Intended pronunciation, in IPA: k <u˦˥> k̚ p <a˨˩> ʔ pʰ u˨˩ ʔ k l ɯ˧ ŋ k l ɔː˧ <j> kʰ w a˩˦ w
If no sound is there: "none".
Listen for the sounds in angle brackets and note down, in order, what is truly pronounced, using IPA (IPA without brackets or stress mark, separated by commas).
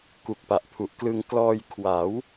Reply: u˨˩, a˨˩, j